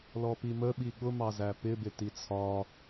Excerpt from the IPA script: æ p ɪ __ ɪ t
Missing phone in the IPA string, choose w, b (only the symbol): b